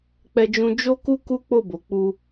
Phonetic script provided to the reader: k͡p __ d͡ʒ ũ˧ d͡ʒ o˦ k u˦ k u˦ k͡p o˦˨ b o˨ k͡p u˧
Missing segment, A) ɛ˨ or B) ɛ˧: B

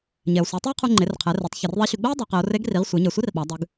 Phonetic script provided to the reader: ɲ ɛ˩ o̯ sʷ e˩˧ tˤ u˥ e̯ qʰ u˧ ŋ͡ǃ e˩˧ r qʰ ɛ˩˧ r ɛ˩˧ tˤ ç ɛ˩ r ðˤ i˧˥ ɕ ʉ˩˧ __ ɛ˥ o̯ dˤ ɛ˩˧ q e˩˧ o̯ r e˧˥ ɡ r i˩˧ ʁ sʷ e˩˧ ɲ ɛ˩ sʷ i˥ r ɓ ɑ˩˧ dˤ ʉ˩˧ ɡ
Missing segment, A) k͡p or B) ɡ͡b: B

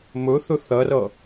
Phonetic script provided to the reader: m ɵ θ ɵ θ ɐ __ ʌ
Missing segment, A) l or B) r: B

